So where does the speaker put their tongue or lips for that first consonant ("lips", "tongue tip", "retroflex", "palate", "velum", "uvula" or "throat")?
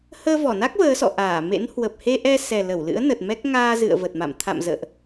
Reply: throat